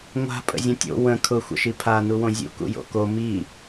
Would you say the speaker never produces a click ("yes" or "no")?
yes